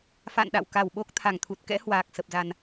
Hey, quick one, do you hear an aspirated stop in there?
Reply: yes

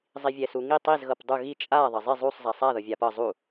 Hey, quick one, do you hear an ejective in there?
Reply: yes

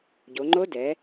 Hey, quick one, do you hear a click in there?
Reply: yes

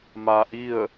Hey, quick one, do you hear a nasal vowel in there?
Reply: no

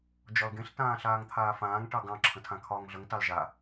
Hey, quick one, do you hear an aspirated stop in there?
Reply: yes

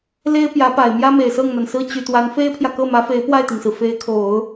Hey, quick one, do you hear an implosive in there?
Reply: no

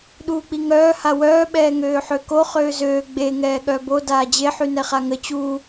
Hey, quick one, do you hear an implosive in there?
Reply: yes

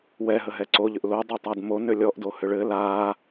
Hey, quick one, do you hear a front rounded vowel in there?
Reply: yes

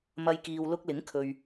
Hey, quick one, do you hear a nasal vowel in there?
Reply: no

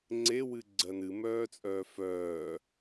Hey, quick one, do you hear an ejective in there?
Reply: yes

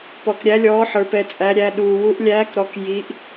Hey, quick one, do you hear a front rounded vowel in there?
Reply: no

